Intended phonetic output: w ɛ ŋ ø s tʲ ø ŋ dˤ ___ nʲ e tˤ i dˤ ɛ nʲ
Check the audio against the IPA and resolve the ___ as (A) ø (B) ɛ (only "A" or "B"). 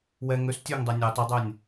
B